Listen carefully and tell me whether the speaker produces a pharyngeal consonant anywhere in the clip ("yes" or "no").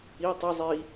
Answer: no